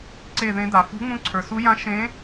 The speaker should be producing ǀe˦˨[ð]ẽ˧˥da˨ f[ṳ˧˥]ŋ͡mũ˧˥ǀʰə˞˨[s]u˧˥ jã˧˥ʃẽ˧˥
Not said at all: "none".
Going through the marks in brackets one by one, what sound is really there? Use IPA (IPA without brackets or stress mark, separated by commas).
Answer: ð, ṳ˧˥, s